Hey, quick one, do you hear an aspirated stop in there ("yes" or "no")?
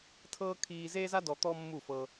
yes